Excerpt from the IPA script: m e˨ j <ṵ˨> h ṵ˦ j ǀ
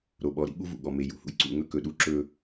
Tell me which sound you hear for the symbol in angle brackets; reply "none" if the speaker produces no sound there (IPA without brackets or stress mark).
ṵ˨